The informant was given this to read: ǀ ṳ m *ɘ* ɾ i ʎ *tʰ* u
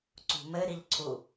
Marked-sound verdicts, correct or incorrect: correct, incorrect: ǀʰ

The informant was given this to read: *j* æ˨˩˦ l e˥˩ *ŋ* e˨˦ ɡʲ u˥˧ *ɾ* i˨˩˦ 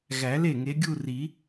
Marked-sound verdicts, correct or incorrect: incorrect: ɣ, correct, incorrect: r

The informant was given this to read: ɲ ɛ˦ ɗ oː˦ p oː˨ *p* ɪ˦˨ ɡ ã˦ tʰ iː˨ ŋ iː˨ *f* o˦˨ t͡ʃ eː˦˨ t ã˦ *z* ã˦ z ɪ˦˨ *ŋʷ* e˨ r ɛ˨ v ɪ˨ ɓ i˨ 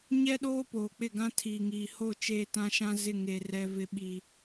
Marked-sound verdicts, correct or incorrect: incorrect: k͡p, incorrect: h, incorrect: ʃ, incorrect: ŋ

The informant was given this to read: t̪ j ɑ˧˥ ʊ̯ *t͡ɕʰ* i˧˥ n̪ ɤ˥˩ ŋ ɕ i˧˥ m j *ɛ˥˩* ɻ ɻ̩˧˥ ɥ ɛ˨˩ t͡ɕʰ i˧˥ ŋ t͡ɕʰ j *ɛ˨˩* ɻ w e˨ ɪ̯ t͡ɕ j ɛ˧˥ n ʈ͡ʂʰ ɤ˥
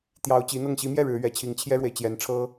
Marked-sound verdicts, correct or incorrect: incorrect: t͡ɕ, correct, incorrect: ɛ˥

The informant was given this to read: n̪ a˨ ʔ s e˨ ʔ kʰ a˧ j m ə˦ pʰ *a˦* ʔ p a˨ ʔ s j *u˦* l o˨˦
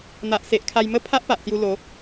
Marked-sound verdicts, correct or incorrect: correct, incorrect: u˧

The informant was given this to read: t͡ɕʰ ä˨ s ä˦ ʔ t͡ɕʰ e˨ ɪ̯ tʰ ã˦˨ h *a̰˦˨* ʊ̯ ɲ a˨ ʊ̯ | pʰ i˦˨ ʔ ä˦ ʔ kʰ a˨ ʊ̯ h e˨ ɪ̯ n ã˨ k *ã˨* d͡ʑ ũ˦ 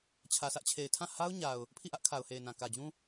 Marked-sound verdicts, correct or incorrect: incorrect: a˦, incorrect: ä˨

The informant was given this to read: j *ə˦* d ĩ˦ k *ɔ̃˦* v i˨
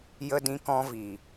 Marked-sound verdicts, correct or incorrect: correct, correct

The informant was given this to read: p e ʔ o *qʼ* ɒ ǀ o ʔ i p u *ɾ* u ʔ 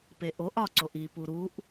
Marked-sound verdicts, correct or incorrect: incorrect: ʔ, correct

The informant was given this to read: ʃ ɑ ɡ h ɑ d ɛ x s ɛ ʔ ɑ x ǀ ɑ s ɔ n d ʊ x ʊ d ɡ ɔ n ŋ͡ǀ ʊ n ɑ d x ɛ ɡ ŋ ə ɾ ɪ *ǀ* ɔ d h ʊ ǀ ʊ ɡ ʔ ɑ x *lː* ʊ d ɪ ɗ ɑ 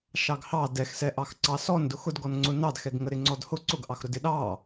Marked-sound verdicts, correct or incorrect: incorrect: ŋ͡ǀ, incorrect: ɾ

